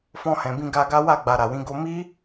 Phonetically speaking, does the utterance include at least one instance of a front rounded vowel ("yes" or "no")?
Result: no